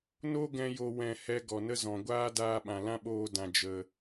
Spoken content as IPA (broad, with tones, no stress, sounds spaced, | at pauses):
n o˦ ɡ ɛ̃˧ j o˧ w ɛ̃˦˨ h ɛ˦ ɡ ɔ˨ n ə˦ z ɔ̃˨ ɡʷ aː˦ d aː˧ ɓ ã˨ l ã˦ ɓ oː˧ d ã˨ d͡ʒ ə˨